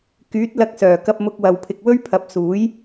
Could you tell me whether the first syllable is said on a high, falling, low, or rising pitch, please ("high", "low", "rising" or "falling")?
rising